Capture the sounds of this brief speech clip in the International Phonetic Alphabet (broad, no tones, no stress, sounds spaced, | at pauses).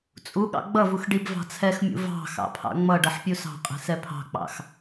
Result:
t͡sʼ u ɠ ɑ̰ ɡ͡b ʌ v u x ɖ i b v ɑ̤ t͡sʰ ɛ x mʲ ṵ v ɑ̤ x ɑ̰ pʰ ɑ̰ ŋ͡m ʌ ɖ ʌ ħ pʲ u s ɑ̤ qʼ ɛ̤ s ɛ pʰ ɑ̤ k͡p ɑ̰ x